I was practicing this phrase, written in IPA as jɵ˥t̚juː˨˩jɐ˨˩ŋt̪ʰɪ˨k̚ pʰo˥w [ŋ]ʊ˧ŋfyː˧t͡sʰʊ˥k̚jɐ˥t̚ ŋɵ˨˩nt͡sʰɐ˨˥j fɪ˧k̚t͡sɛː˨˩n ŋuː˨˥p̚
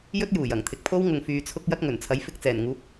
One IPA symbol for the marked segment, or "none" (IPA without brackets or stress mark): ŋ